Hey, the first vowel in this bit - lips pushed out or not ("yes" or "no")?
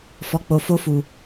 yes